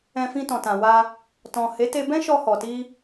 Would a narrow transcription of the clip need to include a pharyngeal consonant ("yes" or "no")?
no